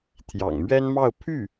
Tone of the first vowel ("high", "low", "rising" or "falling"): low